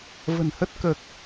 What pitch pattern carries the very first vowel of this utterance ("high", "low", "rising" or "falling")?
low